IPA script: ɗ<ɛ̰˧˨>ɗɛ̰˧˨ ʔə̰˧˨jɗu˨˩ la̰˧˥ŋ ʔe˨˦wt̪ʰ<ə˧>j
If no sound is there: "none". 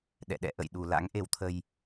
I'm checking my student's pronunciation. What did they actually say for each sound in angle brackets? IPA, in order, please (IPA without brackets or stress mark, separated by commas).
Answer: ɛ̰˧˨, ə˧